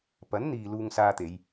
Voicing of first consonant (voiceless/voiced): voiceless